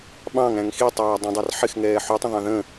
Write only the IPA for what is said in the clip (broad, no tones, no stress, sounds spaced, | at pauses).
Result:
ɓ ɑ̃ ŋ æ̃ ŋ x i tˤ ɑː dˤ ũ dˤ ɑ r ħ ɪ x ŋ ɛː ħ u tˤ ə̃ ðˤ ɑ̃ ð ə̃